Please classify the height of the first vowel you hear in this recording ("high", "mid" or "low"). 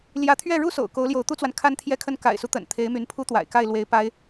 low